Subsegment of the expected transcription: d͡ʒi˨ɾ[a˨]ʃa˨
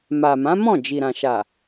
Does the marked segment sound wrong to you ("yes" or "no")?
yes